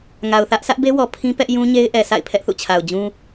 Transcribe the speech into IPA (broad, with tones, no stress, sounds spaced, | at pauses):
ŋ a˨ ʊ̯ θ ä˦ ʔ sʰ ä˦ ʔ b e˦ w ɔ˨ pʰ ĩ˦ p ɛ˦ ʔ j ũ˦ ɲ e˦ ɪ̯ ʔ ɛ˨ sʰ a̰˦˨ ɪ̯ pʰ ɛ˦ ʔ θ ṵ˦˨ t͡ɕʰ a˨ ʊ̯ d͡ʑ ũ˦